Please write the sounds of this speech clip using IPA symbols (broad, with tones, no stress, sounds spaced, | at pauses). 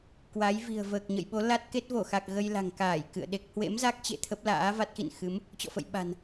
k w a˨˦ j v i̤˨˩ ə̯ v əː˨˩ k̚ ɲ ə̰˧˨ j ɓ o˨˦ l a˦˥ t̚ k e˦˥ t̚ v o˧˩ x a˨˩ k̚ ɣ ə˧ j l a̤˨˩ ŋ k aː˧˩ j k ɨ̰˧˨ ə̯ ɗ e˦˥ k̚ h w ḛ˧˥ m z a˦˥ k̚ t͡ɕ ḛ˧˨ t̪ʰ ə˦˥ p̚ l a̰ː˧˥ v a˦˥ t̚ x ḭ˧˨ n x ɨ˨˦ m | t͡ɕ ɔ̰˧˨ f ə̰˧˨ j ɓ a̤˨˩ n